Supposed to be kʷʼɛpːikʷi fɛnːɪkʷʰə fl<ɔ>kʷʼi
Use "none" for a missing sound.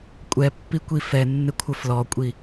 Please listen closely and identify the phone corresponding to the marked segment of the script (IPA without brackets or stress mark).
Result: ɔ